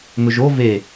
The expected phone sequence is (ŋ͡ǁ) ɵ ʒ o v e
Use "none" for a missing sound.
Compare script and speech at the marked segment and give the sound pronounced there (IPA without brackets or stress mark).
ŋ